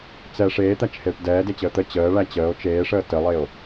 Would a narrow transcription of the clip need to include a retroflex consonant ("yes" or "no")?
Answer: yes